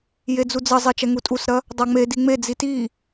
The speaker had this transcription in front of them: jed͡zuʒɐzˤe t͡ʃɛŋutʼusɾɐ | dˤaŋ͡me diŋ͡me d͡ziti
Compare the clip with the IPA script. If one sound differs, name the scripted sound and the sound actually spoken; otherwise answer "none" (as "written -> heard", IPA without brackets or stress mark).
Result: ʒ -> d͡z